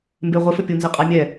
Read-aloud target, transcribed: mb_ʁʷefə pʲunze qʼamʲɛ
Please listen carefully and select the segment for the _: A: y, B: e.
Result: B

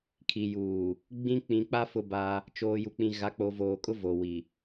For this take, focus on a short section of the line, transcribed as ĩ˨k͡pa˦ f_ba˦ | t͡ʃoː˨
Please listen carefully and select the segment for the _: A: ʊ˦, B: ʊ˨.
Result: A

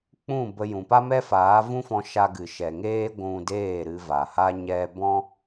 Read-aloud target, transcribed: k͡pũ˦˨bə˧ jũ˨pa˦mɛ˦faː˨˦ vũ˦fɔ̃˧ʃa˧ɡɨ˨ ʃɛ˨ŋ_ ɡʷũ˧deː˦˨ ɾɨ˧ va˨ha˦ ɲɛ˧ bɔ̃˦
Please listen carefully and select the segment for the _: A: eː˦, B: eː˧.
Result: A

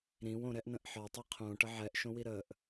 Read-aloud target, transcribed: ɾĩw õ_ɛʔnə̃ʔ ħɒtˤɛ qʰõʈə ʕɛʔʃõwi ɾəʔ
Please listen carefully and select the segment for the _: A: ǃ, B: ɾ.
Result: B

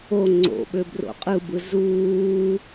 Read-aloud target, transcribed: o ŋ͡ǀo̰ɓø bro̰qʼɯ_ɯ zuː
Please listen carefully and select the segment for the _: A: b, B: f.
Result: A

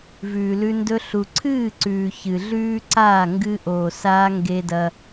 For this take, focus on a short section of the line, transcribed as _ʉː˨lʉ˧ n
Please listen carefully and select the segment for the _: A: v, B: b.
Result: A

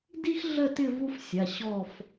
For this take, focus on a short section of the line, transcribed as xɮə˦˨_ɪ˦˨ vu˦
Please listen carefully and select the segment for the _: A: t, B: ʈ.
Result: A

